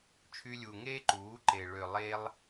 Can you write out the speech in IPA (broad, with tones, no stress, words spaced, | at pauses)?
t͡ʃʰy˧lʲu˨ŋeː˦ ǃuː˨˦ǃe˨ ɭø˨ lˠeː˧lˠ